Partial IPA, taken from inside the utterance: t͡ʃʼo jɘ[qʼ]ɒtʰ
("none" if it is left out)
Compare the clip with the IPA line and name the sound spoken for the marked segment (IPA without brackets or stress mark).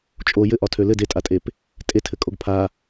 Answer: ʔ